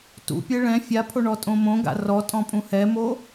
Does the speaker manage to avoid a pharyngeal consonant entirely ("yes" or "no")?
yes